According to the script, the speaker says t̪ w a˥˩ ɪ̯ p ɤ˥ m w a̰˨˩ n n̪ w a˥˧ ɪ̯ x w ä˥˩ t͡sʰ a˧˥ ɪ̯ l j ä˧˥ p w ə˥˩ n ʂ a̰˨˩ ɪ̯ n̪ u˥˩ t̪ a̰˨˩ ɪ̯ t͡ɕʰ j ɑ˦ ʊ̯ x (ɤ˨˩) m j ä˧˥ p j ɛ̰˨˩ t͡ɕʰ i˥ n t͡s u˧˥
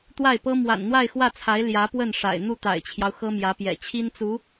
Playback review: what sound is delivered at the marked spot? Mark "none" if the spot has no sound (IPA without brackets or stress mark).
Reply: ɤ˥